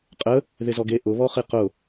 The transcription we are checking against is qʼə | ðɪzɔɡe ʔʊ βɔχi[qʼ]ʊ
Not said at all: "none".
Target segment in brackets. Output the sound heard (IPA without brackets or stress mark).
q